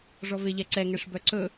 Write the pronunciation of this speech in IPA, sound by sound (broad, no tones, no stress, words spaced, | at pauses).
ʐɔveʎɛǀɛ ŋɛʂbœǀɵ